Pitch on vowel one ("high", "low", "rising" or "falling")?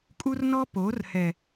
high